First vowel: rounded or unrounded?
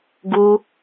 rounded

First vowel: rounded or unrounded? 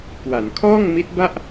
unrounded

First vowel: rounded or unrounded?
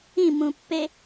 unrounded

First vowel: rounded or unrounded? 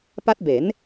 unrounded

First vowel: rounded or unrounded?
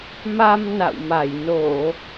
unrounded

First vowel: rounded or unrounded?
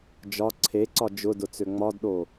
rounded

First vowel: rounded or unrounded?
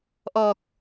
rounded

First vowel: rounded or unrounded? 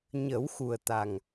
unrounded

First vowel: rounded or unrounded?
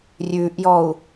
rounded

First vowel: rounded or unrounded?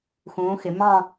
rounded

